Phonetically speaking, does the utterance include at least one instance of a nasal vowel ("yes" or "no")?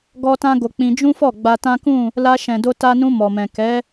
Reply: yes